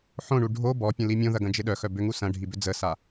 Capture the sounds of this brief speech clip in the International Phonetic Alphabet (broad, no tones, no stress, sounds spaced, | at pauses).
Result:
ħ õ ɳ u ɖʱ o b ɔ pʲ ə̃ l i mʲ õ ð ɐ ɡ ɐ̃ d͡ʒ ɪ ɗ œ x œ b ʏ ŋ u s ɐ̃ ɖʱ i b ʏ d͡z ə s a